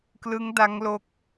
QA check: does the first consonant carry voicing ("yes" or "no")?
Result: no